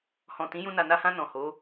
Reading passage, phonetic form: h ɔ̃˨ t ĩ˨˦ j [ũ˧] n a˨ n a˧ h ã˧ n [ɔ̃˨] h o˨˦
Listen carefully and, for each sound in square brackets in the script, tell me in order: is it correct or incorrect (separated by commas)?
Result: correct, correct